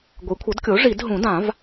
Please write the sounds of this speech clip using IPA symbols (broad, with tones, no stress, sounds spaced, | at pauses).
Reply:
ɡʷ e˩˥ kʷʰ ʌ˩˥ d kʲ o˩˥ ʐ i˨˩˦ d ɦ ũ˨˩˦ d ã˨˩˦ v